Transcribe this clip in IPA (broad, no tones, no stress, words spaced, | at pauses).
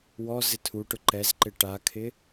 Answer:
wɔ zɪtʰuʈʊ ǃɛzǃɪ ʈakʰɪ